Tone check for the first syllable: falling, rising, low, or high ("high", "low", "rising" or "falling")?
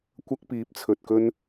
high